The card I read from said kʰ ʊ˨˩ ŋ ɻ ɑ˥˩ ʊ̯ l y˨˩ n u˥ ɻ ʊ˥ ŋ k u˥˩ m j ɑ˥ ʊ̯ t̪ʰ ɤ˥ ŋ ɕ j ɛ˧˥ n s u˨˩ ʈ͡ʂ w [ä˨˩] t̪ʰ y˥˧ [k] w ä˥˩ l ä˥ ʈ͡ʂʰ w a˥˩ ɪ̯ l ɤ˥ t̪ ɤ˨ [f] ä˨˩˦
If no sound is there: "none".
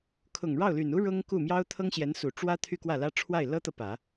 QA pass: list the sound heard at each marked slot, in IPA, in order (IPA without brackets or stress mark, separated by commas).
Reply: ä˥, k, p